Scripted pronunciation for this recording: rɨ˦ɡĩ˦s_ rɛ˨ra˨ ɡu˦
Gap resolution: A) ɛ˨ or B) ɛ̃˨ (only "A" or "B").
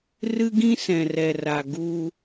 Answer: B